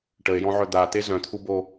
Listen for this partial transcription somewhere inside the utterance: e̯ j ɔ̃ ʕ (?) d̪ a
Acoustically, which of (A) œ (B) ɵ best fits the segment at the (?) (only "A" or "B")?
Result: A